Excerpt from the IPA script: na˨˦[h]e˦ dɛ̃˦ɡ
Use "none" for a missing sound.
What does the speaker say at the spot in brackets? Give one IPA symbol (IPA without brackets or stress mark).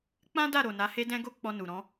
h